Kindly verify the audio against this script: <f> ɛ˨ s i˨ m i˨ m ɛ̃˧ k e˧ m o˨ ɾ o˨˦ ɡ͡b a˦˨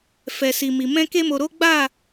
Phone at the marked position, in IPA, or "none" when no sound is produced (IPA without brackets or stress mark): f